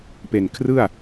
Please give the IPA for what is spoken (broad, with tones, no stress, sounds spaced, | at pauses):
p e˨˩ n kʰ r ɯ˥˩ a̯